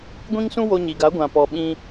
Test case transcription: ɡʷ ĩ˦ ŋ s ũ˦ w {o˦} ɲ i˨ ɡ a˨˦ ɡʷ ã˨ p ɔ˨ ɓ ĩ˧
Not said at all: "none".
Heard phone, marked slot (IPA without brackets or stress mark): o˧